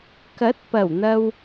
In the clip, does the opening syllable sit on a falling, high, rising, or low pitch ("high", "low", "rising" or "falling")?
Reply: rising